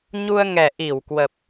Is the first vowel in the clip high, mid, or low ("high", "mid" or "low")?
high